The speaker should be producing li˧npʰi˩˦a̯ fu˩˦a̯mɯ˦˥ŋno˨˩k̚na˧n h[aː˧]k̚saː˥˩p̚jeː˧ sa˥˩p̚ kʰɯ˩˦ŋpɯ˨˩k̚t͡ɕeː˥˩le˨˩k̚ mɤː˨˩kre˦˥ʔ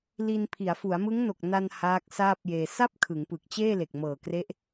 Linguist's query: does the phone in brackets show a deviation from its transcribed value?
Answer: yes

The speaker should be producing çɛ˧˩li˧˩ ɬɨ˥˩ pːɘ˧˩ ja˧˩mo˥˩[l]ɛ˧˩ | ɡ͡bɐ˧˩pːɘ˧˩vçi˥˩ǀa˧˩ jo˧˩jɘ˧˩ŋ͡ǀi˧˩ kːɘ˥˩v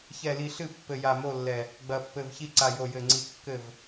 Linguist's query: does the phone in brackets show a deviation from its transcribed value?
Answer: yes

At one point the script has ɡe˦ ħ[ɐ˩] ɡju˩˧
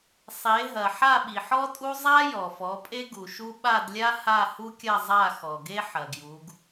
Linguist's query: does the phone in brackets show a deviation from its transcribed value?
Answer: no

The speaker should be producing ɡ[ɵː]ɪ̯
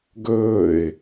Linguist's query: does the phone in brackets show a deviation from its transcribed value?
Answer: no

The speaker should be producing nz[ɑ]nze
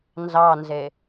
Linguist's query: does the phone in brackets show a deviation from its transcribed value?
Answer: no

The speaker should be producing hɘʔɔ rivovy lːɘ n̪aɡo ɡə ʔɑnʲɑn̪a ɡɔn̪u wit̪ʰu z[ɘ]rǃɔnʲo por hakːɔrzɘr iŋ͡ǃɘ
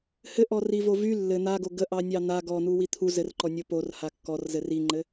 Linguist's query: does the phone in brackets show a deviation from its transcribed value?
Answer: no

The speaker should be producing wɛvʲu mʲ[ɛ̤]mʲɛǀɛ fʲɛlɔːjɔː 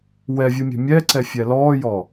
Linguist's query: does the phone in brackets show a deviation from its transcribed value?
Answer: no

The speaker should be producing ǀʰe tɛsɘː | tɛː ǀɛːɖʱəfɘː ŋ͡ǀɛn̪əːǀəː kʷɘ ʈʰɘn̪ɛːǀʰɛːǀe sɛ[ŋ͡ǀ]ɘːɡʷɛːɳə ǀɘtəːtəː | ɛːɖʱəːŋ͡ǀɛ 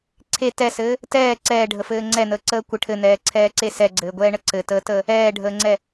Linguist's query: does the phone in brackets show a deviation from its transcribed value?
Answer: yes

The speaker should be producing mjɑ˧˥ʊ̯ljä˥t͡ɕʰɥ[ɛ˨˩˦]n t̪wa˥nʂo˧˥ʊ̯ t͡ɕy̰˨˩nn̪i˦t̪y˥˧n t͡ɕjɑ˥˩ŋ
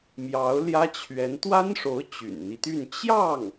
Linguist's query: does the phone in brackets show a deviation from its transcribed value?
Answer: yes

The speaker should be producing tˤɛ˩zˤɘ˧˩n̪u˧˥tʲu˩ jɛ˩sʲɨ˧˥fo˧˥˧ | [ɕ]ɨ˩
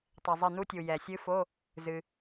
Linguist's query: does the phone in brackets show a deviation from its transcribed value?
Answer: yes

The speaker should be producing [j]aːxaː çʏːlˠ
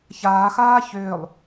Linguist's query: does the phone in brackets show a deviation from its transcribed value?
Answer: yes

